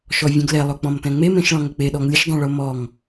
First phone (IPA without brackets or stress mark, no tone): ʃ